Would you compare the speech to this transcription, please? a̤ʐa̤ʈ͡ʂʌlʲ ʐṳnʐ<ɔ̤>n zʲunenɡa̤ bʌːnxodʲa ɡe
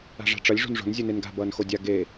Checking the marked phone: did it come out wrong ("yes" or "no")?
yes